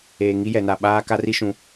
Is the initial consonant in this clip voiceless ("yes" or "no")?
no